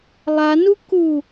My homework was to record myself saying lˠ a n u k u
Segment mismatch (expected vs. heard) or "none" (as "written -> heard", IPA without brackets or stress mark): none